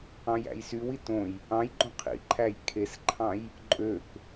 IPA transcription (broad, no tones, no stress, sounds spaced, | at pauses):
ɑ̃ j æ̰ j s y w i t õ j | ɑ̃ j ɡ͡ǃ õ qʰ ḭ ǃʰ æ j kʰ e s ǃʰ ɑ̃ j | ǃʼ ø k